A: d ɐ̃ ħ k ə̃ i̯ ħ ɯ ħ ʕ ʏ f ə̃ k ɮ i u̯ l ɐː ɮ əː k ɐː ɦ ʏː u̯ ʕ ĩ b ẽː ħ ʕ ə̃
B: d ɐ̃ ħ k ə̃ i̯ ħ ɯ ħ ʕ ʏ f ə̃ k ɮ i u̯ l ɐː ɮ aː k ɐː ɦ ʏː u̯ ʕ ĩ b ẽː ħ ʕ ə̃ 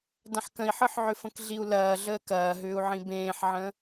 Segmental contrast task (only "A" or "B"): A